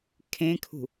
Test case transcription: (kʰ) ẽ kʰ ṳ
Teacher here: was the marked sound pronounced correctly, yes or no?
yes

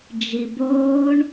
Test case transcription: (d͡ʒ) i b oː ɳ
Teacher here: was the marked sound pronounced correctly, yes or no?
yes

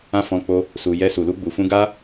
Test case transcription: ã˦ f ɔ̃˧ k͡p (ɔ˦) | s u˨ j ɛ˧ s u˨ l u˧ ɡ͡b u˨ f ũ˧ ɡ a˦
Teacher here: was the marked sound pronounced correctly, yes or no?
no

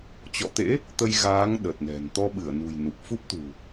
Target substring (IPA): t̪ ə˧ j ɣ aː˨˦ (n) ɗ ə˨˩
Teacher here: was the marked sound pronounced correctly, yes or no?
no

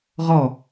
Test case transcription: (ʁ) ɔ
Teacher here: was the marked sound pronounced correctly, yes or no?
yes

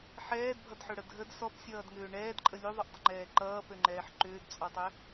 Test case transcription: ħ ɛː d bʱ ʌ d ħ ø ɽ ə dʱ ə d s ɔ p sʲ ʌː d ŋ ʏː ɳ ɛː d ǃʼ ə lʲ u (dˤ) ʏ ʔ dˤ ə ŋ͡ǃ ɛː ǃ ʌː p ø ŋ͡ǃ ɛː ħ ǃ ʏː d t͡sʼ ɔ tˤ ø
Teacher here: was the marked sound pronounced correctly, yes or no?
no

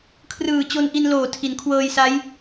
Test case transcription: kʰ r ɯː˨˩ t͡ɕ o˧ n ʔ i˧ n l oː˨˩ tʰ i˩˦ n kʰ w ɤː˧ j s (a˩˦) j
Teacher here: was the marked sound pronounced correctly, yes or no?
no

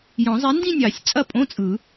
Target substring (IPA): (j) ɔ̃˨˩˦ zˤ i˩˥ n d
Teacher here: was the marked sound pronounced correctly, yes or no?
yes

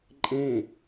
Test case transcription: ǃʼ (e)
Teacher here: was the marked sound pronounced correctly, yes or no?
no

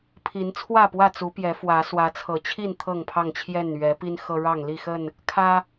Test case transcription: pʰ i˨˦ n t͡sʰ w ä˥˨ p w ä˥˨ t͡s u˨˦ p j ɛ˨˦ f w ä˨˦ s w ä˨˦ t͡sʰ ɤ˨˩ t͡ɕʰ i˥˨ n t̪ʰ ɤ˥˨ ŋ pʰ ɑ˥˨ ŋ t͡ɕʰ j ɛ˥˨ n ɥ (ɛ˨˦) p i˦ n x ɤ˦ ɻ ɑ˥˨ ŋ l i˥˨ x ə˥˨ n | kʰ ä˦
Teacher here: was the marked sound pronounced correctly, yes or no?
yes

